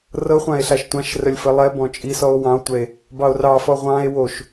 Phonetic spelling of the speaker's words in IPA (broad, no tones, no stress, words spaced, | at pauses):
rɤχʷãe̯ ɬaʃtʷãʃrəlʲ fəlˠɛbɔ̃ t͡ʃʼisɔo̯ wɑ̃o̯tʷɛe̯ | bɑo̯rɑfɔ ʁʷɑ̃e̯ woʃ